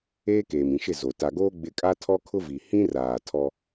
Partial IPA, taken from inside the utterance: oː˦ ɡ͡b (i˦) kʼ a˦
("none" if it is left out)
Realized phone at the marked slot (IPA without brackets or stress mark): ɪ˦